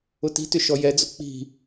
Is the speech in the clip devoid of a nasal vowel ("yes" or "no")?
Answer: yes